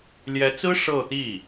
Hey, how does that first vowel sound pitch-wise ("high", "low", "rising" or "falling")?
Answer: rising